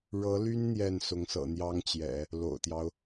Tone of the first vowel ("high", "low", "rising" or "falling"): rising